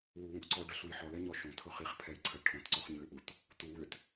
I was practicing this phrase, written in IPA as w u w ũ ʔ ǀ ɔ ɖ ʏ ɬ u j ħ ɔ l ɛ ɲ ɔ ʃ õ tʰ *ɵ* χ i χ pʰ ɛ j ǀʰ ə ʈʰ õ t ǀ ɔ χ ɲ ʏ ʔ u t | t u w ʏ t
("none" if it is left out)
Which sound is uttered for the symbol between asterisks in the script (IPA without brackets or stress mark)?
ɵ